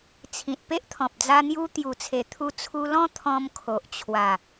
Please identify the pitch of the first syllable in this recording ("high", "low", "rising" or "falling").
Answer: low